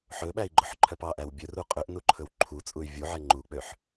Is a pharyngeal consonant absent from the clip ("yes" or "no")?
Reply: no